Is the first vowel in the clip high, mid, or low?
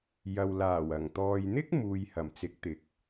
low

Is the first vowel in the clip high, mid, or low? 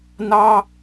low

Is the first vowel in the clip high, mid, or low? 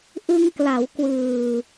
high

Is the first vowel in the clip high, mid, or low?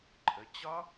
mid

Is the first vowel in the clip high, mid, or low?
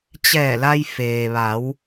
mid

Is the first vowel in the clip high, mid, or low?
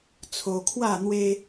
mid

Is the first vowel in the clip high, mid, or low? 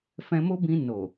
mid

